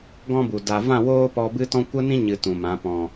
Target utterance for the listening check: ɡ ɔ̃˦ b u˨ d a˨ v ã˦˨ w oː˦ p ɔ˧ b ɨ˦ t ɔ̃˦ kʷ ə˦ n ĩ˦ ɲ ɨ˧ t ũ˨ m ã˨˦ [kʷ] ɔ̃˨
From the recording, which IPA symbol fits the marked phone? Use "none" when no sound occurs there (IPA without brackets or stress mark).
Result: p